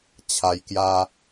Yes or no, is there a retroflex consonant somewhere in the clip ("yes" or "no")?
no